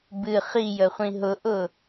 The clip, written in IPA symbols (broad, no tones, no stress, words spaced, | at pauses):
bɨ χijəχʷĩ ɦʊʔʊ